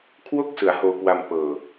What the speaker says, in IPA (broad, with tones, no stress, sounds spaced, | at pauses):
kʰ w o˥˩ k̚ s ɯ˩˦ a̯ h oː˧ k w a˧ m p ɤː˨˩